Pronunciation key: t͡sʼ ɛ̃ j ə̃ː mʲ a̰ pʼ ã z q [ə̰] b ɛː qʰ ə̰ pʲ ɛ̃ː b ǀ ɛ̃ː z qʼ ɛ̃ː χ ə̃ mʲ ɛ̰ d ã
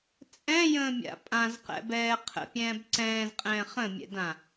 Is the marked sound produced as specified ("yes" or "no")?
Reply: no